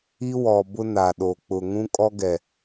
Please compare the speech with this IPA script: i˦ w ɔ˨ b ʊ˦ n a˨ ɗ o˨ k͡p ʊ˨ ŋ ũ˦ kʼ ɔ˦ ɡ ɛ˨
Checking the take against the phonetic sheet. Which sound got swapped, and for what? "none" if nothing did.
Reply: none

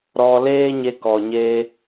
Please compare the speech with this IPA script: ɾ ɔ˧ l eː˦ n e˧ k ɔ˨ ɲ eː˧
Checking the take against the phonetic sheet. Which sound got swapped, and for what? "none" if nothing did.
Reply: n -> ɲ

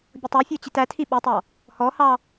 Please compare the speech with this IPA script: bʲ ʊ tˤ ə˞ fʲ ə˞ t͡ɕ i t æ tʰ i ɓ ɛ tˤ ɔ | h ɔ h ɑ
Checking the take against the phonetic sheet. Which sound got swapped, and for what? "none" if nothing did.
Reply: none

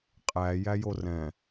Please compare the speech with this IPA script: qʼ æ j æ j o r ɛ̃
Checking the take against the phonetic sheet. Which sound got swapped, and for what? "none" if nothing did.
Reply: none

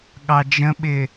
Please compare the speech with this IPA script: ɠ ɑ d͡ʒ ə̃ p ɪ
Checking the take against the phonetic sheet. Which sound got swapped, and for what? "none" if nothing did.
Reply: p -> ɓ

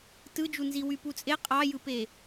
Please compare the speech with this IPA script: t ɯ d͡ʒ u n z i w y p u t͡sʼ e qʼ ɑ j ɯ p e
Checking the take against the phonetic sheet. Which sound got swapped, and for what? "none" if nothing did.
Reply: none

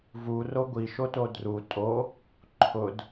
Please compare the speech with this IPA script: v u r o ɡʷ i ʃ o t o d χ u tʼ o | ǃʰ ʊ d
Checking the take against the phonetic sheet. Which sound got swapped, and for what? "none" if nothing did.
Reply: χ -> r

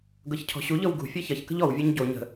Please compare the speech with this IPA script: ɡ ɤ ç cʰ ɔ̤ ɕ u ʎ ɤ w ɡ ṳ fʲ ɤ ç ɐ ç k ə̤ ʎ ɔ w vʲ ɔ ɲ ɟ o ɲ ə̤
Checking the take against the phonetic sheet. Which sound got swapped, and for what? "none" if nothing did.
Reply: none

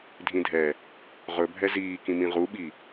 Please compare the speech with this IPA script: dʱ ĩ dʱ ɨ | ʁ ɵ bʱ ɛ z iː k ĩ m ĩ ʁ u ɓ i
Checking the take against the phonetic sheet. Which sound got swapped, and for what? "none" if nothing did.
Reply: ɨ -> ɛ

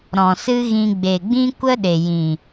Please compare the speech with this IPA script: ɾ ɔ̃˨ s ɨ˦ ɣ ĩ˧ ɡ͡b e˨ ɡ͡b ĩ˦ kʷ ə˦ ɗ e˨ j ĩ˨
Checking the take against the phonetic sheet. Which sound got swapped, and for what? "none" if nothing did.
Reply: none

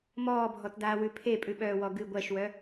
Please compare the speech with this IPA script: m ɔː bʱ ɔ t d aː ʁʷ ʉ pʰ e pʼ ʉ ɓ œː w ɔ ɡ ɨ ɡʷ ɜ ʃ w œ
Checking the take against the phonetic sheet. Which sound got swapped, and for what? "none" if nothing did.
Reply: ʁʷ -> w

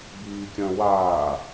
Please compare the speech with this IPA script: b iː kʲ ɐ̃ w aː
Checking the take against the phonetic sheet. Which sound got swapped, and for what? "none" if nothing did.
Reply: none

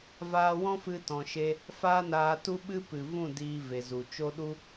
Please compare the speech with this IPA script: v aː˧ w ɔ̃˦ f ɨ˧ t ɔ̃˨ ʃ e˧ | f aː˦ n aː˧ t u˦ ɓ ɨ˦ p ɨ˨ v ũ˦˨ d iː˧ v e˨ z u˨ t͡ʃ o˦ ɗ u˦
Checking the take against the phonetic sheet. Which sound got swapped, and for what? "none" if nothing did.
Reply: none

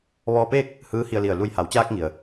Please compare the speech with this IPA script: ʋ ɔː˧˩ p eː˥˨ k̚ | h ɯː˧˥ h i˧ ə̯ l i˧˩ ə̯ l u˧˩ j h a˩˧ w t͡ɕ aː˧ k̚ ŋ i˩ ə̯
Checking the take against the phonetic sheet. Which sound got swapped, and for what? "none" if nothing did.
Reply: ɔː˧˩ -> ɔː˧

